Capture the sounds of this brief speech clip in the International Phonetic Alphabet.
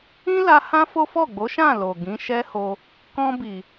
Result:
ĩ˦ l a˧ h ã˦ f o˦ f ɔ˦˨ ɡ͡b o˨˦ ʃ ã˦˨ l o˨ ɡ ĩ˨˦ ʃ ɛ˦ h o˧ | k ɔ̃˧ b i˨

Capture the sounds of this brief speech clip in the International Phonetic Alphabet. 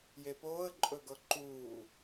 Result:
j e p oː ə̯ ǃʼ ɵ ɡ ɤ ǃ uː

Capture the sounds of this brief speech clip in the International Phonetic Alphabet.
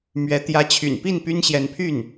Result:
m ɥ ɛ˧˥ t̪ j ä˧˥ t͡ɕʰ y̰˨˩ n p i˥˩ n p y˥ n ɕ j ɛ˧˥ n pʰ y˥˩ n

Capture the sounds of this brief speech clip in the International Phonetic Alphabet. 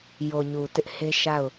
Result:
j o˨ ɲ u˨ t ɪ˦ ʔ h e˦ ʃ a˦˨ ʊ̯

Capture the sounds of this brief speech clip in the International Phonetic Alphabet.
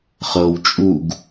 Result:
χ ɤ w t͡ʃʼ u ɡ

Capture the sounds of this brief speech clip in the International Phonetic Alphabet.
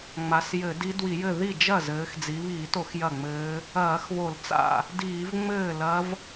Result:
ŋ͡m a˩˧ s j ɘ˧˩˧ d i˧˥ d w i˧˩˧ j ɘ˥˩ ð i˥˩ d͡ʒ ɐ˥˩ z ɘː˩˧ x d͡z i˩˧ β iː˧˩˧ t o˧˩˧ x j ɐ˥˩ ŋ͡m ɘː˧˥ | ɐː˧˩˧ x β o˧˩˧ l t͡s a̰˥˩ | d iː˧˩˧ v ŋ͡m ɘː˥˩ l ɐ˧˥ v

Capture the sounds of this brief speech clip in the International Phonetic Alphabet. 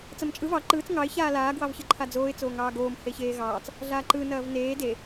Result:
t͡s ɐ m t͡ʃʼ ɯ v ɑ ǃ ɯː t͡s ŋ ɑ ɪ̯ ç aː l aː ɡ w ɑ v ç ɯ ǃʰ a d͡z oː ɪ̯ t͡s oː ŋ ɑː ɡ oː m h e ç eː ɣ ɑː t͡s | ɮ aː ǃ ɯ n ɐː v n eː d e

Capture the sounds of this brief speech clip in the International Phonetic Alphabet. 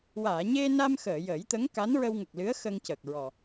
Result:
w aː˨˩˨ ɲ e˧ n a˧ m x əː˨˩˨ j ə˨˩˦ j t̪ ə˧˥ ŋ k a˧˥ n ɹ ə˧ w ŋ ə˨˩ k̚ l ɨ˧˥ ə̯ x ə˧ ŋ c ə˨˩ k̚ ɹ ɔ˨˩

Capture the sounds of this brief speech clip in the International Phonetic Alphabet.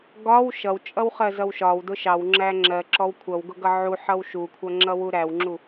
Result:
ɡ ɒ w ʃ ʌ w t͡ʃʼ ʌ w χ ɜ z ʌ w ʃ ɒ w d ʊ ʃ ɑ w ŋ͡ǁ æ ŋ͡ǁ ɜ ǁ ɔ w kʷʰ ʌ w ɡ ʊ ɡ ʌ ʕ u ħ ʌ w ʃ u kʷʰ ʌ ŋ͡ǁ ʌ w u ɾ æ w ŋ͡ǁ u

